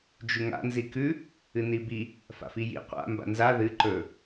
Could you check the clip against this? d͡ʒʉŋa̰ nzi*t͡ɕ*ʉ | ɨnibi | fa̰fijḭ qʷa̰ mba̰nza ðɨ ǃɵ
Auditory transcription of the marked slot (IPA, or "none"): k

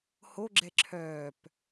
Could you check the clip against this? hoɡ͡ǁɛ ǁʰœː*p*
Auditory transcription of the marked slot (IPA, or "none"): p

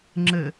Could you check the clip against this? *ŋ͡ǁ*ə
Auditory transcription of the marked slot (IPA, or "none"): ŋ͡ǁ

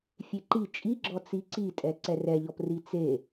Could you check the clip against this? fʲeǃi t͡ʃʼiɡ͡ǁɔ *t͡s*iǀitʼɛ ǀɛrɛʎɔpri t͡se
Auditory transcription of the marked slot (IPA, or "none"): t͡s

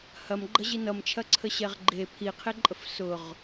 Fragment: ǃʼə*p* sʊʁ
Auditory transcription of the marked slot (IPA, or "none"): f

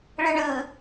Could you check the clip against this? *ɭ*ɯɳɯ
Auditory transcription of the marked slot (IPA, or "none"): ɭ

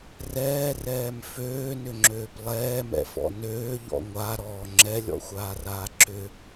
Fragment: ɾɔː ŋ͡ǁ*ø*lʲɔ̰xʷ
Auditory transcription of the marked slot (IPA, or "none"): ɛ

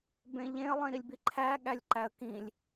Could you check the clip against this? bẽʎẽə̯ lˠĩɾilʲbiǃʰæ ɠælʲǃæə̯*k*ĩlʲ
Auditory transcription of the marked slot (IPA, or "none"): k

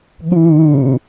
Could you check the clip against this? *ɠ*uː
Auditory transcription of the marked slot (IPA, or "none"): ɠ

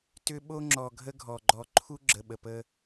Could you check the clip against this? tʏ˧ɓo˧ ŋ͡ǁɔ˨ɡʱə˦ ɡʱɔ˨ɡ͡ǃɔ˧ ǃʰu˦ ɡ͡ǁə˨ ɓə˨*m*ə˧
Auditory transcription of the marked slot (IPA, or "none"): p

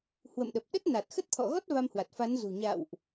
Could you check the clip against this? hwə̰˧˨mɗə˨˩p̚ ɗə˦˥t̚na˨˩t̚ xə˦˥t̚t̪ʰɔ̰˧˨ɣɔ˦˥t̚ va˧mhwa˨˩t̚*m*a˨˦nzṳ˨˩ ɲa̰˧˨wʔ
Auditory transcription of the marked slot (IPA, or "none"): f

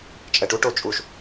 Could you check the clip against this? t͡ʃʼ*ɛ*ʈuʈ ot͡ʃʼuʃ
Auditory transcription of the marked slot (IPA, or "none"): ɛ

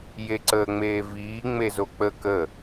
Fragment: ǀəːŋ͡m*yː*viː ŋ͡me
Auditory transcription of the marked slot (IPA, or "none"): eː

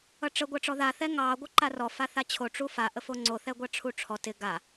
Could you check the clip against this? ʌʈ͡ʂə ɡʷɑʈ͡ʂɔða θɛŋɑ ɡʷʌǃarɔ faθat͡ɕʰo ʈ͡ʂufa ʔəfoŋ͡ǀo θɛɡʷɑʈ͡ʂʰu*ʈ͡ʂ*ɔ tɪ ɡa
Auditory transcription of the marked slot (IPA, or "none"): ʈ͡ʂʰ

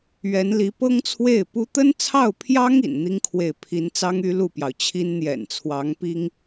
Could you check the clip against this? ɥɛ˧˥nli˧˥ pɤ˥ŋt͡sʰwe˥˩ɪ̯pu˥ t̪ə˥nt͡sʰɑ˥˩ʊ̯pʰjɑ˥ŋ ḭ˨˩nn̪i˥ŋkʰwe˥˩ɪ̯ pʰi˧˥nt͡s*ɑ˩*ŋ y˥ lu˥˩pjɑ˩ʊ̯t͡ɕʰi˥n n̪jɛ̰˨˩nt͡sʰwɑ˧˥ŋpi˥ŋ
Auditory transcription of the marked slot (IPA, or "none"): ɑ˥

